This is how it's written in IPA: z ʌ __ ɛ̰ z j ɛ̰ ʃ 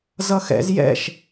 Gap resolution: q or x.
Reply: x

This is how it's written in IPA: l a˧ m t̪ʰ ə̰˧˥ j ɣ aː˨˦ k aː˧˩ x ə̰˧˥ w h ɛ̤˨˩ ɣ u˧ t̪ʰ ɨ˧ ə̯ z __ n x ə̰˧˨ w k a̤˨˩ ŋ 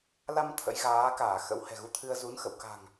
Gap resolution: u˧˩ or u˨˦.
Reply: u˨˦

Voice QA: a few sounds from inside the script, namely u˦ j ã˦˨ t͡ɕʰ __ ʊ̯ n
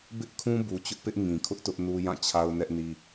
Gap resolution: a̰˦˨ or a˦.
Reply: a˦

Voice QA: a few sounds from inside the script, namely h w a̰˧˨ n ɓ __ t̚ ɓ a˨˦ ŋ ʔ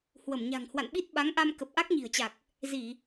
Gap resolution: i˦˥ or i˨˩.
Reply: i˦˥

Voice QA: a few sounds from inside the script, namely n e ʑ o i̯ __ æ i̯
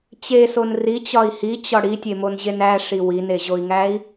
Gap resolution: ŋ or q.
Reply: ŋ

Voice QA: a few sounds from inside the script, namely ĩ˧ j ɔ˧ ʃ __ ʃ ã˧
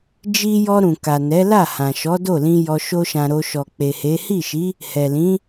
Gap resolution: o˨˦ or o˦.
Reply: o˦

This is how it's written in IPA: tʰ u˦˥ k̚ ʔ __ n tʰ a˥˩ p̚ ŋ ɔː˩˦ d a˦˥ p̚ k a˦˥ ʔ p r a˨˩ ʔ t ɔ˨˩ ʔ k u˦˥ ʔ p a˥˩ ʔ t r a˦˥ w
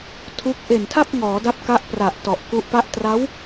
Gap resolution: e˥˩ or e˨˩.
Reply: e˨˩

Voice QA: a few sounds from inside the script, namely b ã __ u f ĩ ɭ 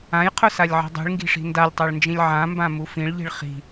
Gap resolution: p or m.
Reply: m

